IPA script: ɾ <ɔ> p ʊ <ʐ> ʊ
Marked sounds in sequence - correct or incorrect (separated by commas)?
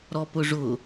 correct, correct